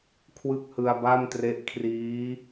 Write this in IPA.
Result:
kʰ w ɯ˥˩ k̚ h ɯ˧ a̯ b a˥˩ m t r e˦˥ ʔ kʰ r iː˦˥

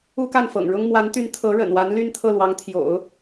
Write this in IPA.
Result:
u˥ k a˥˩ n f ɤ̰˨˩ ŋ ɻ ʊ˥ ŋ m w a˧˥ n t̪ y˧˥ n t̪ʰ ɤ˧˥ ɻ ə̰˨˩ n w a˧˥ n l y˥ n t̪ʰ ɤ˥˩ l w ɑ˧˥ ŋ t̪ʰ j o̰˨˩˦ ʊ̯

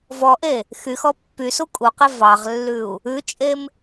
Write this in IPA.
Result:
v ɔ ʔ e | x y x ɔ pː y s u kʼ u q e v ɑ ʁ lː ʉ u̯ | ʉ t͡ʃʼ e m

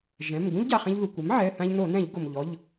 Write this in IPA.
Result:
ʒ ɛ̃˩˧˩ m ɡ ũ˥ ʎ ɟ a˩˧˩ χ ɛ̃˧ ʎ ð u˩ kʷ e˩˥ m ʕ ɛ˩˧˩ θ ã˧ ʎ n o˧˩˧ n ɛ̃˧˩˧ ʎ ɡ o˩ m ʎ ɔ˩˧˩ ʎ

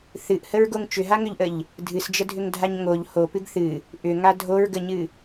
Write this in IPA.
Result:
θ ɨ ʔ h ə ɹ ɡ o ŋ t͡ʃ ʏ ɦ a ŋ ʏ ʎ ʔ ə ʎ | dʱ ɨ s d͡ʒ ə dʱ ʏ ŋ dʱ a ɲ ŋ o ʎ h o p ɨ ɡ θ ɨ | ʔ ʏ ŋ a dʱ o ɹ ɡ ə ɲ ɨ

